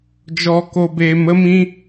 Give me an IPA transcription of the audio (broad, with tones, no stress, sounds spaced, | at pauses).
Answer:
d͡ʒ ɔ˧ k o˧ b eː˧ m ə˦ m ĩ˦